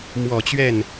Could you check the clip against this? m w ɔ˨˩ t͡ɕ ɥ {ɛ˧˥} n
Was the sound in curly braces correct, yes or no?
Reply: no